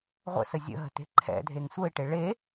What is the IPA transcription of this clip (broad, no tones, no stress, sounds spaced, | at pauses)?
ʁʷ ə̰ s ə zʲ ə̰ ɦ ə̤ t e̤ ǃʰ ɛ̰ dʱ e ŋ sʷ ə ɪ̯ ʈ e ɭ e